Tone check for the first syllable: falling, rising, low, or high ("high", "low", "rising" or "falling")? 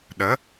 rising